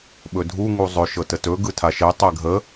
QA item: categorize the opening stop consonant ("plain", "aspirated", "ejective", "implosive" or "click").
implosive